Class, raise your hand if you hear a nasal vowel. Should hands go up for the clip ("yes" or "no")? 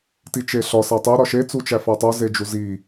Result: no